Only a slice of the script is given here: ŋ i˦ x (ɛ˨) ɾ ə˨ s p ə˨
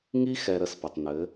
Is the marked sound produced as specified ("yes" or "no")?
yes